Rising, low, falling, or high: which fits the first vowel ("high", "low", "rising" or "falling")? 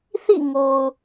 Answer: falling